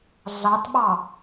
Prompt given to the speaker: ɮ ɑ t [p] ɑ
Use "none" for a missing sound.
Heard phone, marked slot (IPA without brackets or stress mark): ɓ